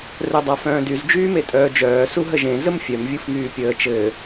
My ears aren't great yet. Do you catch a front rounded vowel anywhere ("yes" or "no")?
yes